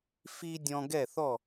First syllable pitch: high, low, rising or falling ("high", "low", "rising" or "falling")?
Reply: high